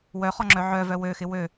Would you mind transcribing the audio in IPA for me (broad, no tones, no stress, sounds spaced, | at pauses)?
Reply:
w œ χ ɔ ŋ͡ǁ œ ʕ œ v œ w ø x ɪ w ø